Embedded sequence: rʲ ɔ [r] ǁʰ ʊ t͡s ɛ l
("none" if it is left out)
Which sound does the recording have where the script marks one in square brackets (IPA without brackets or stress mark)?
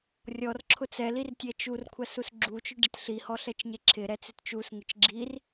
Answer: r